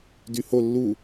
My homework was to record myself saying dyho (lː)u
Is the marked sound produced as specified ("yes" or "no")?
yes